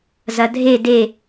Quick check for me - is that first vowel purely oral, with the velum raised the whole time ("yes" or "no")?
yes